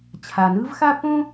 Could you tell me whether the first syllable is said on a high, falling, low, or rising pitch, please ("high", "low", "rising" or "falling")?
low